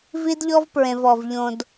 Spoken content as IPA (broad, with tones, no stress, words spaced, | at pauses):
vi˦dʎɔ˦vpɹẽ˨v ɔ˨vʎõ˨d